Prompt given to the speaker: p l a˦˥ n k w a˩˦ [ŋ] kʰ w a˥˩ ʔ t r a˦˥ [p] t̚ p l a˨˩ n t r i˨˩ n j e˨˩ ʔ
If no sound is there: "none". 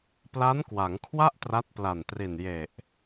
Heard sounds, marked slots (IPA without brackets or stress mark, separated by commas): ŋ, none